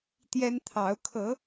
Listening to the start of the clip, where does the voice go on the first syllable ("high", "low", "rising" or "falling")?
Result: high